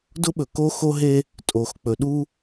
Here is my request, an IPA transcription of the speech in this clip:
d ʊ˦ ɓ ɵ˨ k o˦ x o˦ ɦ e˦ | tʼ o˨ x k͡p ɵ˨ ɗ u˦

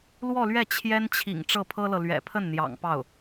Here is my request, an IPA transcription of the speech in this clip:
l w ɔ˥˧ l ɥ ɛ˥˩ t͡ɕʰ j ɛ˥ n t͡ɕʰ ḭ˨˩ ŋ ʈ͡ʂ ɤ˥˩ pʰ ɤ˥ l ɤ˨ l ɥ ɛ̰˨˩ pʰ ə˥˩ n n̪ j ɑ̰˨˩ ŋ p ɑ˥˩ ʊ̯

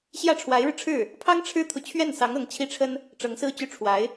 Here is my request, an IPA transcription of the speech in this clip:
ɕ j ä˥˩ ʈ͡ʂʰ w a˧˥ ɪ̯ ɻ ɻ̩˧ ʈ͡ʂʰ ɻ̩˥˩ | pʰ ɑ˥ ŋ ʈ͡ʂʰ ɻ̩˥ t̪ʰ u˨ t͡ɕʰ ɥ ɛ˥˩ n s ɑ˧˥ ŋ ɤ˧˥ ŋ t͡ɕʰ i˥˩ ʈ͡ʂʰ ə˥ n | ʈ͡ʂ ɤ˧˥ ŋ s ɹ̩˥˧ t͡ɕ y˥˩ ʈ͡ʂʰ w a˧˥ ɪ̯

